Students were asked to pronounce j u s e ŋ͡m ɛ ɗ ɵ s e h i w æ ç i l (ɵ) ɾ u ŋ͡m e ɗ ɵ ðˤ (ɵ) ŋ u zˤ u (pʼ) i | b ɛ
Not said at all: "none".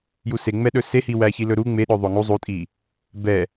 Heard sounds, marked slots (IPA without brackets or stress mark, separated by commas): ɵ, o, tʼ